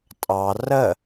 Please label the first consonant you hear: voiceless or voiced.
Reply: voiceless